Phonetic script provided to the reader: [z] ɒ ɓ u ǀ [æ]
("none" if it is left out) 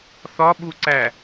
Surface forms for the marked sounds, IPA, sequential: θ, æ

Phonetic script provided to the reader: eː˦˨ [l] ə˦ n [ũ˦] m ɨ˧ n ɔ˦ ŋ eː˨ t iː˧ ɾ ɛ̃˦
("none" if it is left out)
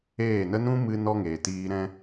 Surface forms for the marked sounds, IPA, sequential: n, ũ˦

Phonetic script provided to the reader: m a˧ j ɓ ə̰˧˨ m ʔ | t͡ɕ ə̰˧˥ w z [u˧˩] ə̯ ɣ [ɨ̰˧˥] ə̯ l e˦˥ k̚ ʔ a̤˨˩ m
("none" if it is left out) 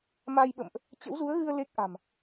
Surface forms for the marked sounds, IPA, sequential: u˨˦, ɨ˧

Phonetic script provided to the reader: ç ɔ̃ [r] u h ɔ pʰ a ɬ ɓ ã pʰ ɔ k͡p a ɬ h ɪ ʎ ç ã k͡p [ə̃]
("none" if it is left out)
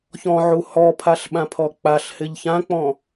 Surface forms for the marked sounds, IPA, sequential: ʕ, ɔ̃

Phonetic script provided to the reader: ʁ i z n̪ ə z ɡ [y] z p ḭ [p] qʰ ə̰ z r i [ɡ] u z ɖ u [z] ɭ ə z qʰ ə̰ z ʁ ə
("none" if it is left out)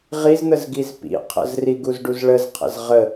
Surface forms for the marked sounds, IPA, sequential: i, none, ɡ, z

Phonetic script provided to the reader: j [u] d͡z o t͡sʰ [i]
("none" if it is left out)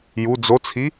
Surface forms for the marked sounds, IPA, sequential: u, i

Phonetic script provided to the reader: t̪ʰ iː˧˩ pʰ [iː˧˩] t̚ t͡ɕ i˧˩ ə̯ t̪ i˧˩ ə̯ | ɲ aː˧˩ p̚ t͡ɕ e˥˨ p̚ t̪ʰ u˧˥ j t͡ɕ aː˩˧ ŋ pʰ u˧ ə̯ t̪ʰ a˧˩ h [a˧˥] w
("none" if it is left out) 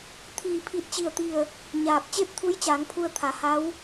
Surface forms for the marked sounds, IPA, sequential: i˧˩, a˧˥

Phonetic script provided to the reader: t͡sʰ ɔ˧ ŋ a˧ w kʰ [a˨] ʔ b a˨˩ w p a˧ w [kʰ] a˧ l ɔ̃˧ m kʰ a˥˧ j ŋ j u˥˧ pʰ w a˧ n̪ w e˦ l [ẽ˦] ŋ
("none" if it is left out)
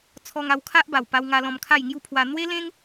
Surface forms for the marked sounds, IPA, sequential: a˦, ŋ, ẽ˦

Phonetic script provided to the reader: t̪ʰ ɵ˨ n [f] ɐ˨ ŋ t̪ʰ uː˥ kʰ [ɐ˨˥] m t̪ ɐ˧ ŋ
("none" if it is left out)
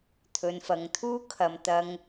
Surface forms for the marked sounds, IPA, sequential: f, ɐ˨

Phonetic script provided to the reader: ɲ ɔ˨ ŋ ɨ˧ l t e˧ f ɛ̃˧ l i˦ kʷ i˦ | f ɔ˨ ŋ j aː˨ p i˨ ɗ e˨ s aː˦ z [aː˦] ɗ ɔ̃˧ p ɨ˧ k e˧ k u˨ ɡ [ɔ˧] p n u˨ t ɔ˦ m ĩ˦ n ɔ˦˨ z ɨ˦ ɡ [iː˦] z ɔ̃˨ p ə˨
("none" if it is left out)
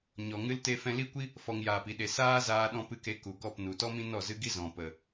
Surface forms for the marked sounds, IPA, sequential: aː˧, ɔ˦˨, i˦

